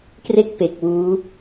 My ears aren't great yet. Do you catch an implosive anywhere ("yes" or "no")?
no